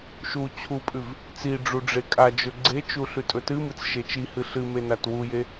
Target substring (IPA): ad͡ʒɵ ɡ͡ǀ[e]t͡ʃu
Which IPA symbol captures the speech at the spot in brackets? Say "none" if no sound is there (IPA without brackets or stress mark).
e